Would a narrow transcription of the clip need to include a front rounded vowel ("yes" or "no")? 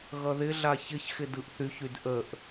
yes